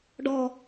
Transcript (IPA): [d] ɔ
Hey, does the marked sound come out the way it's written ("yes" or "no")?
no